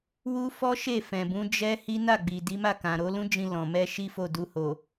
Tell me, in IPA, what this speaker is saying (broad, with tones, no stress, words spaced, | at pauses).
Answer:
wu˦fɔ˦ʃe˦˨ fɛ̃˨bũ˨˦ d͡ʒɛ˦ hi˦na˦˨ɡ͡bi˨ di˨˦ma˦˨kã˨ ɾo˨˦lũ˦d͡ʒĩ˧ lɔ̃˨ mɛ˧ ʃi˦fo˦˨du˧ ho˨